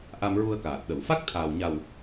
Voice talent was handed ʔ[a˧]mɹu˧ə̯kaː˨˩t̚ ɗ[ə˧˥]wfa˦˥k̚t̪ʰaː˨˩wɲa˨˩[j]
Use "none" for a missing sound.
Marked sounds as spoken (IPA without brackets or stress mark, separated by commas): a˧, ə˨˩˨, w